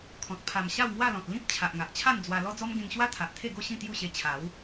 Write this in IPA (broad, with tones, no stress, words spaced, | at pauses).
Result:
kʰɔ̃˨t̚ pʰa˨˩m ɕa˥˧wŋwa˥˧lɔ̃˨t̚ lĩ˦p̚ t͡ɕʰa˨ʔŋa˨ʔt͡ɕʰa˥˧n d͡zwa˧ lɔ˦d͡zɔ˦m ɡẽ˧ŋɕwa˦t̪ʰa˨ʔ t̪ʰe˥˧ɡo˥˧ɕĩ˥˧ t̪ju˥˧ɕe˧t͡ɕʰa˨˦w